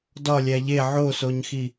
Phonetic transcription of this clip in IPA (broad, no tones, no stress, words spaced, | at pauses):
dɒlʲæ ʎe ʕosoɲxi